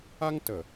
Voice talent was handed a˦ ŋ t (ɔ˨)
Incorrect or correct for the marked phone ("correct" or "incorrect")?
incorrect